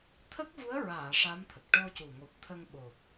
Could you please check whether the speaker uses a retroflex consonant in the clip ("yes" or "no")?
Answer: yes